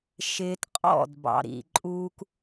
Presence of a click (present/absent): present